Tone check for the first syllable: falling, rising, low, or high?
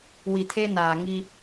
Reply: low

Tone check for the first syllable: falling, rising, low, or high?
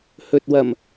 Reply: low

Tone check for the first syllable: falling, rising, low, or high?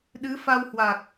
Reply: rising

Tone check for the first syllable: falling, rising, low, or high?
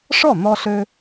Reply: falling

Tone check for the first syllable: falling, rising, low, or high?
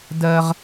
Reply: high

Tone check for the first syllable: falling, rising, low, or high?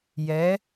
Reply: rising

